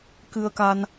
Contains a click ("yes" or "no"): no